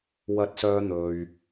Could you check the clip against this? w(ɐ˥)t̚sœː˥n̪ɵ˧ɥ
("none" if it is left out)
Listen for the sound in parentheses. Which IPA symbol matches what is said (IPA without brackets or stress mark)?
ɐ˥